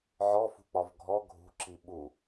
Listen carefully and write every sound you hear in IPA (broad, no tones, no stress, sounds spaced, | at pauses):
ʕ ɔ f ṳ k͡p ɒ v ɡʱ ɔ ɡʱ ṳ ǁ i ɓ u